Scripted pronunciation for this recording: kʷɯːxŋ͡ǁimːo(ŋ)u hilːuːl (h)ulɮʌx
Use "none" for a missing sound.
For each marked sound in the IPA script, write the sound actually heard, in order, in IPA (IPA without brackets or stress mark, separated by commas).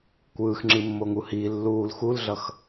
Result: ŋ, x